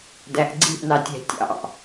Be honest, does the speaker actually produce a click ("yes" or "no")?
yes